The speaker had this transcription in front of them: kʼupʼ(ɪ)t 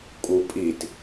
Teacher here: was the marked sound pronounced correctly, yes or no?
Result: no